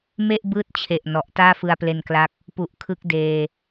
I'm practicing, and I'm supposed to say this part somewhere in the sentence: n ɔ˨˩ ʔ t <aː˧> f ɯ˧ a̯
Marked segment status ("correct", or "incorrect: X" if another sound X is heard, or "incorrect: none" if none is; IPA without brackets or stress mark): incorrect: aː˥˩